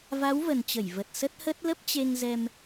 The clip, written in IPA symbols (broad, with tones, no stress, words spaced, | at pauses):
va˨˦wvə˨˩nt͡ɕə˧˩j və˨˩t̚ sə˦˥t̚hə˦˥t̚ lə˦˥p̚t͡ɕe˧ŋzɛ˧m